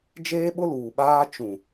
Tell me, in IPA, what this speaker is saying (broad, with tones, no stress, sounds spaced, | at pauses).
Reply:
d͡ʒ eː˦ ɓ ʊ˦ l uː˨ ɓ aː˦ t͡ʃ ũ˨